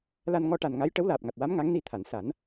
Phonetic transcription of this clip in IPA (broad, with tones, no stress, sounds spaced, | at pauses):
l a˧ n ŋ ɔ˧ ʈ a˨˩ n ŋ a˧˥ j ʈ ə˧˥ w l aː˨˩ p̚ ŋ a˨˩ t̚ w a˧˥ m ŋ a˧˥ ŋ n i˧ t̪ʰ a˨˩˨ n s a˨˩˦ n